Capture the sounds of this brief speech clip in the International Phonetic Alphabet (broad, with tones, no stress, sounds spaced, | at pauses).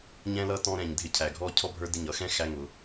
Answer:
ɲ ɛ̃˦ l ʌ˦ t ɔ̃˦ ɾ ɛ̃˨ ɲ dʱ ɪ˦ cʰ æ˨ ɡʱ ɔ˦ cʰ ɔ˦ bʱ ə˞˦ d ɪ˦˨ ɲ ʌ˨ x ɛ̃˦ x æ˦ ŋ ʊ˨˦